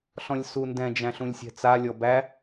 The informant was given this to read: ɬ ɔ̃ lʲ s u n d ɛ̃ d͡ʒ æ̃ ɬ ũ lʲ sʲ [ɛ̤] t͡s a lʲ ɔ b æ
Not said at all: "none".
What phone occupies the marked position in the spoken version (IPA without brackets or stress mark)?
ɛ̤